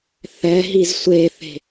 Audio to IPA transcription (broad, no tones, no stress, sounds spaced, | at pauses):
θ ɛ ɦ i z sʷ e θ e̤